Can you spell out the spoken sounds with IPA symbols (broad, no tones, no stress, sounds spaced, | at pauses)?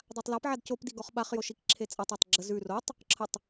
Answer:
dˤ a tˤ l a p ʕ a d c o p d i ɡ ɔ χ ɓ a χ j o ʃ i k ǁʰ e t͡sʼ a tˤ æ tˤ ɡ͡ǁ ə z ʉ r o tˤ | ǁʰ ə tˤ